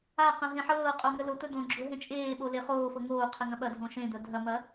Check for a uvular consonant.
present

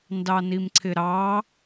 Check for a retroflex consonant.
absent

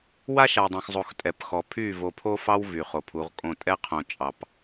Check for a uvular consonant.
present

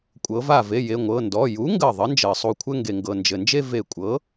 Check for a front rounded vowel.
absent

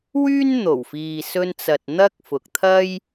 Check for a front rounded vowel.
present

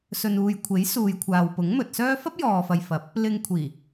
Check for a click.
absent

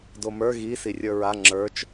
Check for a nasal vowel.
absent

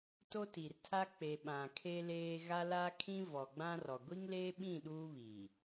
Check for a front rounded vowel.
absent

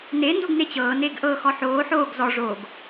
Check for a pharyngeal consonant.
present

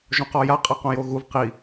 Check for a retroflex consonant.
absent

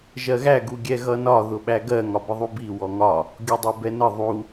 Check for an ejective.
absent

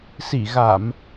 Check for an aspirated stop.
absent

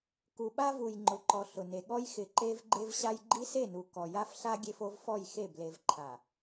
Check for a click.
present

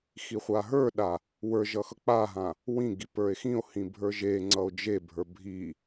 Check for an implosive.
present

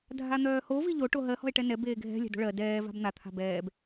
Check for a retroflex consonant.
present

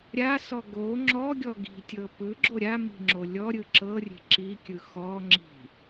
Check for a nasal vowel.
absent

